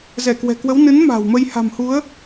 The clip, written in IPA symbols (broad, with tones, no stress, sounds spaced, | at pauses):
z ɛ˧˩ k w ɛ̤˨˩ k w ə˨˦ w n ɨ˨˦ n m a̤ː˨˩ w m ə˧ j h a̤˨˩ m h u˨˦ ə̯